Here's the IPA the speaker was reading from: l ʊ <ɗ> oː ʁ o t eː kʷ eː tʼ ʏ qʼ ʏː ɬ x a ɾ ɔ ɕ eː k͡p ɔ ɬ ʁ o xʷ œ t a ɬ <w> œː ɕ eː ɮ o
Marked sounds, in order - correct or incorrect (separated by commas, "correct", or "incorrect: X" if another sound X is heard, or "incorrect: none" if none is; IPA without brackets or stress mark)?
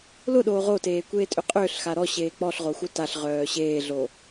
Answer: correct, incorrect: ʁ